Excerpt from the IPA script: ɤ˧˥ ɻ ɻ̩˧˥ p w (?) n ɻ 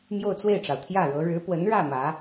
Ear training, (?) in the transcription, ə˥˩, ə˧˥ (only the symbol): ə˧˥